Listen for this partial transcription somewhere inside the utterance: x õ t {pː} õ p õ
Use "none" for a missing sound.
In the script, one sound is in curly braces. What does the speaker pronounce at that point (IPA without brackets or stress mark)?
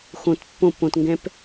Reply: pː